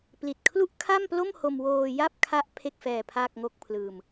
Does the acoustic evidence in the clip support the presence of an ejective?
no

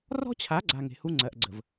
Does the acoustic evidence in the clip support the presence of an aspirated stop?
yes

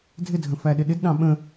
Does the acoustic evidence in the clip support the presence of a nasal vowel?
yes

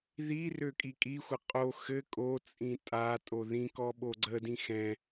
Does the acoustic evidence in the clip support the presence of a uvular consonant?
yes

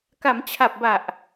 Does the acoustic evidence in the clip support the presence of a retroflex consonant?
no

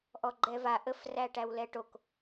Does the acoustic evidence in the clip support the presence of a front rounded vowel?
no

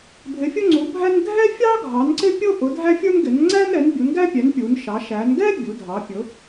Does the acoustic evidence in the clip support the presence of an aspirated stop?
no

